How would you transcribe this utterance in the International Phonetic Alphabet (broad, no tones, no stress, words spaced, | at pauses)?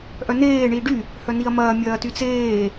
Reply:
ʔœneː ɳiːɖy | hœniɐ̯mɐː mʲɐːtyt͡seː